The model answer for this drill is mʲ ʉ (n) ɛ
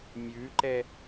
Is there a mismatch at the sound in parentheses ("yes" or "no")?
yes